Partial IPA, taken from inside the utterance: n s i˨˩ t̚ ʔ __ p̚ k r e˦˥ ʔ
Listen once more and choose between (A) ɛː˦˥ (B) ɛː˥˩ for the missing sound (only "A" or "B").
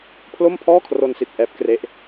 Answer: A